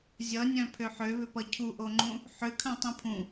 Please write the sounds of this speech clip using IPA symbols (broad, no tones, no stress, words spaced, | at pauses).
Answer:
zʲʌnʲœ̃ pʰøħøβʏpʌ cʰuʔoŋ͡ǃũ | ħʏkʰœ̃ tˤĩpʰũ